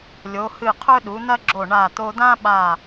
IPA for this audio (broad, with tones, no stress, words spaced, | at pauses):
lʲo˩˧hɨ˧˩qʰɵ˥ ɗu˩˧n̪ɐ˥ɡ͡ǁo˧˩ ɳa˧˩ t̪o˧d̪ã˥ɓa˧˩